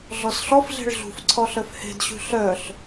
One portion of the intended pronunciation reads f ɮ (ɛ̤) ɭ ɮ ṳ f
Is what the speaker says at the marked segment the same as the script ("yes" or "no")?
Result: no